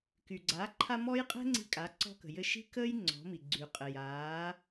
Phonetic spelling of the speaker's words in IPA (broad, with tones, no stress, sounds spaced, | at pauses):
k y˩ ɡ͡ǀ aː˩˧ ǃʰ a˧ m ɔ˥ j qʼ ɛ̤˥ ŋ͡ǀ i̤˧ kʼ a˩˧ ǀ ɔ̤˧ k ə̤˩ j ɘ˧ ʃ i̤˥ k əː˥ j ŋ͡ǀ ɔ̤˩˧ m i˩ ɡ͡ǀ y˩ qʼ ɘ˩ j aː˩˧